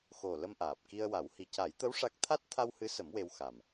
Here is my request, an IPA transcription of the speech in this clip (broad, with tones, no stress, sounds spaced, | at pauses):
x o˨˩ l ə˧ m ʔ aː˨˩ p̚ k i˧ ə̯ w a˨˩˦ w h i˨˩ c a˨˩˦ j t̪ ə˧˥ w ʂ a˦˥ k̚ t̪ʰ a˦˥ t̚ t̪ʰ a˧ w h ɨ˧˥ s ə˨˩˦ m w e˧ w x a˨˩ m